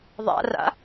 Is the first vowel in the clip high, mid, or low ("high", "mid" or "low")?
low